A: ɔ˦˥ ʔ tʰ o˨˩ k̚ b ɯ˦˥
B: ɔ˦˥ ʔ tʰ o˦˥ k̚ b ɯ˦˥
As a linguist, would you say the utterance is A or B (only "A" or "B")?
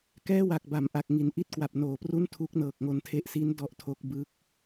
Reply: B